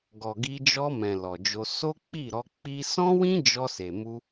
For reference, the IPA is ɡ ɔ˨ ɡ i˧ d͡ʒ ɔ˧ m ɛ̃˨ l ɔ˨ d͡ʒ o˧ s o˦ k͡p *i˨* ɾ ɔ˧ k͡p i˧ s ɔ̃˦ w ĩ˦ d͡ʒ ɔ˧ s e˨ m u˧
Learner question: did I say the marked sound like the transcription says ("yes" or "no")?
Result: no